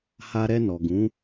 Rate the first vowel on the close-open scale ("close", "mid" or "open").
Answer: open